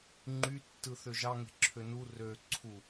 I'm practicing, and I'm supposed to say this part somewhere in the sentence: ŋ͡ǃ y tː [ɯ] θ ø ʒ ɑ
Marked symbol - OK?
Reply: yes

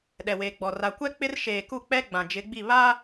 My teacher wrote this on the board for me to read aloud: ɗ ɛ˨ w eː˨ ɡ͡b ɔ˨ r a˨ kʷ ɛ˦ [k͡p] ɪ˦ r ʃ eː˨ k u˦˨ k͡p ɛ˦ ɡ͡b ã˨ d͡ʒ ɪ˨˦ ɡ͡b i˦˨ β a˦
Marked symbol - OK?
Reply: yes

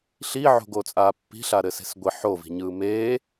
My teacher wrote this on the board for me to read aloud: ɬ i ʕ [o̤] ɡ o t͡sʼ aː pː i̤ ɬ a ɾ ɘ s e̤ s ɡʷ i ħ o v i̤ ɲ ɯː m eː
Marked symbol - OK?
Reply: yes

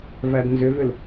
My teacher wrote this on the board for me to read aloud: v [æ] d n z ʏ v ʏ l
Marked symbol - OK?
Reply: yes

